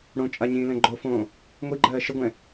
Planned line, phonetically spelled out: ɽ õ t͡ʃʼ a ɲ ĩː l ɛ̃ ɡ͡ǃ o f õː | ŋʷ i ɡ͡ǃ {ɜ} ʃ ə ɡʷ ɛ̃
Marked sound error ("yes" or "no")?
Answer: yes